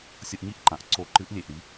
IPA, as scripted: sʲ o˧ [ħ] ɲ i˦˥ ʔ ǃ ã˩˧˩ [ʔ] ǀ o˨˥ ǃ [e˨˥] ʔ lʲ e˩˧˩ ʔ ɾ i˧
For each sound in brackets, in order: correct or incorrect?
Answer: incorrect: ʔ, correct, incorrect: ɨ˨˥

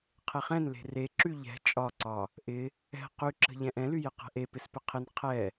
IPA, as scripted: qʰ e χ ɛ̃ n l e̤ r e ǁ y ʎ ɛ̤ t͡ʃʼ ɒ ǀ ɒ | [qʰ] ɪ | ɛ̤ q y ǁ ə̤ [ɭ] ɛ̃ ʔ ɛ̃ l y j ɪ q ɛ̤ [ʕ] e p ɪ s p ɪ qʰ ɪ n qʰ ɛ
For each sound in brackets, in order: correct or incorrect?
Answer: incorrect: ʔ, incorrect: ʎ, incorrect: ʔ

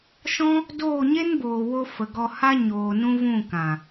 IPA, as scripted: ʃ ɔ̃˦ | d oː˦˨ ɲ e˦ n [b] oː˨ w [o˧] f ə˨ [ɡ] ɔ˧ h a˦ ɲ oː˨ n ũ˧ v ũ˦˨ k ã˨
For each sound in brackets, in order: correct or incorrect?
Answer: correct, correct, correct

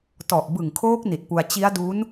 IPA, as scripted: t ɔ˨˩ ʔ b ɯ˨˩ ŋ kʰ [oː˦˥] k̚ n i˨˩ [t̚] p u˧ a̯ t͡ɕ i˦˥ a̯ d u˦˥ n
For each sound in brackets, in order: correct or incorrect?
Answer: correct, correct

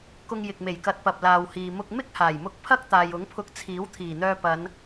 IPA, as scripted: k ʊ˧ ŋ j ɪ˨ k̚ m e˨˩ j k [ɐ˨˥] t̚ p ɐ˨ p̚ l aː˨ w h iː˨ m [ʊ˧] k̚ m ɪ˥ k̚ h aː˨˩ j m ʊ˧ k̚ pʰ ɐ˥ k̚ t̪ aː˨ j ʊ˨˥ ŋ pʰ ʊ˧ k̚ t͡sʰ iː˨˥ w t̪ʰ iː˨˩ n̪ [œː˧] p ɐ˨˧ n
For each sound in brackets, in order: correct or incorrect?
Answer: correct, correct, correct

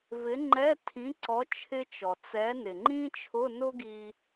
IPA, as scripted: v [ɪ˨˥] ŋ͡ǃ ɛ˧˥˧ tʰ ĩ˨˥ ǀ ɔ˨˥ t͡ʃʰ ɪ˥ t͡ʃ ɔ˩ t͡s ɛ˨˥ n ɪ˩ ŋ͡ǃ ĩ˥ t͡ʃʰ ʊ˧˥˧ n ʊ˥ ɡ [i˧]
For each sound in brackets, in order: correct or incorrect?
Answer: correct, correct

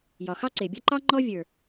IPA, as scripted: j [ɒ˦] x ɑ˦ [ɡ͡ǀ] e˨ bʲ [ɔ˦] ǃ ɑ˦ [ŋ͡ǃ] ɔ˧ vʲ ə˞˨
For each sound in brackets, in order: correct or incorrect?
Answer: incorrect: ɒ˨, incorrect: ǀ, correct, correct

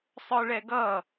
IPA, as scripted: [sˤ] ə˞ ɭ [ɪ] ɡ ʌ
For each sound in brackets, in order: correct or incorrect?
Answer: correct, incorrect: ɛ

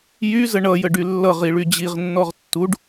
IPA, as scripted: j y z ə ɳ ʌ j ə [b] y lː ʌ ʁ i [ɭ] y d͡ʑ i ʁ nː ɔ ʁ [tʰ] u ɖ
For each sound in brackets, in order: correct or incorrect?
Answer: incorrect: ɖ, correct, incorrect: tː

